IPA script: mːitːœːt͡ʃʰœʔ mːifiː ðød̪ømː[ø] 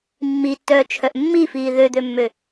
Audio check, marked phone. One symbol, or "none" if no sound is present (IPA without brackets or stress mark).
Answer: ø